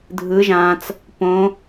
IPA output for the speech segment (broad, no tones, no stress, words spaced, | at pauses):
dʱɯ ʒãt͡s | põ